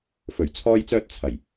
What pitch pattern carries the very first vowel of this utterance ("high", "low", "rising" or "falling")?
low